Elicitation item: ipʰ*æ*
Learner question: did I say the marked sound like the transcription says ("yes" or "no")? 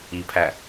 yes